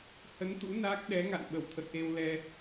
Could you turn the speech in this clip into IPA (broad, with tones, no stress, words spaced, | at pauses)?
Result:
hə˨˦nt̪ṵ˧˥ na˦˥k̚ ɗɛ˨˦ŋa̰˧˨n ɓə˧˩wt̪ʰə̰˧˨jʔe˧wlɛ˧